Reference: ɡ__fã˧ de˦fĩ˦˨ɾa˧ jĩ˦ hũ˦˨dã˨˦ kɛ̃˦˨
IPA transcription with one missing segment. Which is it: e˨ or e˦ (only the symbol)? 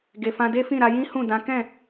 e˨